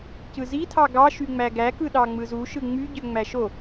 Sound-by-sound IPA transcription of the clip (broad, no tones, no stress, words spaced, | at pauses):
cɯzi tʰɑɡɑ ʃyŋ͡mæɡæ kɯɗɑŋ͡mɯzu ʃɯŋ͡my ɟøŋ͡mæʃo